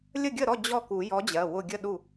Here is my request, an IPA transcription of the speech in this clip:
lʲ ə˥˩ ɡʲ ə˥˩ ɾ ɔ˥˩ d͡ʑ ɔ˥˩ k u˨˩˦ j ɔ˨˥ d͡ʑ ɜ˩˧˩ w ʊ˧˩ ɡʲ ə˥˩ ɗ u˥˩

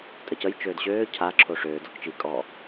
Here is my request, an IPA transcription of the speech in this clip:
tʼ ə c ə j t͡ʃ øː d ɕ øː cʰ a ǁʰ o ʂ øː d ɔ k t͡ʃ i kʼ ɔ

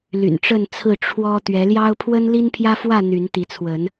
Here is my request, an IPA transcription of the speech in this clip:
l y̰˨˩ n ʈ͡ʂ ə˥˨ n t͡sʰ ɹ̩˥˨ ʈ͡ʂʰ w ɔ˦ t̪ ɥ ɛ˨˦ l j ɑ˦ ʊ̯ pʰ w ə˦ n l i˦ n pʰ j ä˦ f w ä˥˨ n̪ y˨˦ n t̪ i˨˦ t͡sʰ w ə˨˦ n

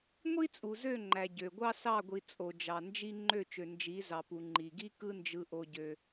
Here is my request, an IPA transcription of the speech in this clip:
ŋʷ i˦ t͡sʼ u˨ z ø˦˨ ŋ͡ǃ æ˨ ɟ ø˨ ɡʷ ɑ˦ s ɑ˦˨ ɡʷ i˨ t͡sʼ o˨ d͡ʒ ɑ˨ n d͡ʒ i˦ ŋ͡ǃ ø˦˨ t͡ʃ ø˨ n d͡ʒ i˨˦ z ɑ˨ p u˨ ŋ͡ǃ i˨ ɡ i˦ k ɯ˦ n d͡ʒ ɯ˦ ʔ o˦ ɟ ø˦

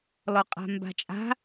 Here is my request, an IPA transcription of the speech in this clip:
l ɔ qʼ a̤ m b a̤ t͡ʃʼ a̤

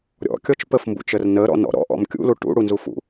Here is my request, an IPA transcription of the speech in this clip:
ɾʲ ɔ̰ kʲ ɔ t͡ʃ p ə f m b ṵ t͡ʃ ə r n ə ɾ ɔ̰ n ɔ̰ ɾ ɔ̰ ʔ ɔ̰ m kʲ ṵ l u ʈ ṵ ɽ u n z u f ṵ

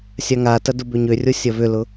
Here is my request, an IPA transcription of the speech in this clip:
sʲ a ŋ a t ɐ d ʊ b ʏ ɲ ø rʲ o sʲ ɐ v ʏ l ʊ

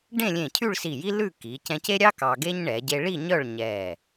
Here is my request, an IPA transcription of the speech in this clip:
ɖ ẽ˥˧ lʲ ẽ˧˩ cʰ y˥˧ ɭ s i˧˩ j i˥ l ʉ˥˧ k i˩˧ c ɛ̃˧ c e˥ ɾʲ ɑ˥ k ɑ˧ ɡ e˥ ɲ ɳ ɛ˩˧ ɟ e˧ ɭ i˥˧ ɲ œ˥˧ ɭ ɲ ɛ˧˩

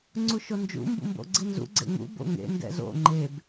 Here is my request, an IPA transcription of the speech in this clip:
ŋ͡ǀ u ʃ o n d͡ʒ ṵ m b ṵ m b o̰ ɡ͡ǀ i n z ṵ ɡ͡ǀ ḛ ŋ ṵ b o̰ ŋ ḛ n d ɛ̰ z o̰ ŋ͡ǃ e b

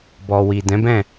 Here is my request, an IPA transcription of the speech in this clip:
b ɔ˨ w i˨ d ɛ̃˨˦ b ɛ̃˦˨

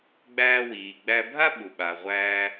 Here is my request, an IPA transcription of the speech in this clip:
ɡ͡b æː˧ w iː˩ ɡ͡b æ˧ bʱ a˥ ɓ u˩ ɓ a˩ ʁʷ æː˥

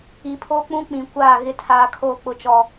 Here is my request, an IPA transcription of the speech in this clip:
i˨ pʰ oː˦ k͡p ũ˦ k͡p ĩ˨ kʷ aː˦˨ ɣ ɪ˨ tʰ aː˨ kʰ oː˨ k͡p ʊ˨ t͡ʃ ɔ˨

